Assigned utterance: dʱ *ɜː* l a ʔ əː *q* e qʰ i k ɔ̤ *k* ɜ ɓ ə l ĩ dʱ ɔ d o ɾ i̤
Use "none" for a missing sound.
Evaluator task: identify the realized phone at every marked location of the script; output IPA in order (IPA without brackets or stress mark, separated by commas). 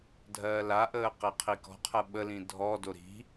ɜː, q, qʰ